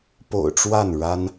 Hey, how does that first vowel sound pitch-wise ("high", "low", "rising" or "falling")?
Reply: low